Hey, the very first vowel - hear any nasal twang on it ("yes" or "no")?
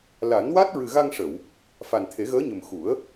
no